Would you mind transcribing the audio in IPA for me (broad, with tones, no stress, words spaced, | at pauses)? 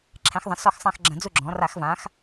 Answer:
ǁʰɛ̃˩˧xðˤɐ̃˩˧ sɔ˦˨x sˤã˦˨xɡ͡ǁɐ̃˧˩˧ d͡zu˦˨ɡ͡ǁɔ̃˩˧ ra˧˩˧xvã˩˧x